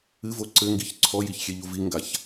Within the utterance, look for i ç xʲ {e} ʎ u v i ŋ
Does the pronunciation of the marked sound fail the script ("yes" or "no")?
no